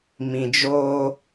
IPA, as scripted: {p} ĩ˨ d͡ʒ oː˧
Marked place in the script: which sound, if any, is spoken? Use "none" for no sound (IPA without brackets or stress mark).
m